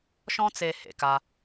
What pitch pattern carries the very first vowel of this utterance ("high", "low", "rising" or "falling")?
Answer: high